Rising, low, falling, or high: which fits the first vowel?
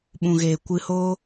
low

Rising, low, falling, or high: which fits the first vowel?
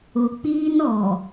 low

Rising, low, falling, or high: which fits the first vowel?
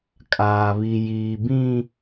low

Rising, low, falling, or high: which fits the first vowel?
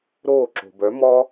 falling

